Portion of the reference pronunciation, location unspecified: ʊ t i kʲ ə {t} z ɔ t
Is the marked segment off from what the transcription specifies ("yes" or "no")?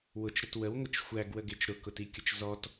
yes